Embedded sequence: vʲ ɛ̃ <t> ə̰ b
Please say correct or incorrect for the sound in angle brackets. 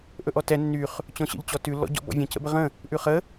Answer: incorrect